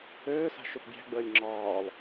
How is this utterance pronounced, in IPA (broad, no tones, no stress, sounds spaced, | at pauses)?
øː s a̤ ʃ ø p bʲ æ̤ ɡ͡b əː lʲ ŋ͡ǁ ɒː lˠ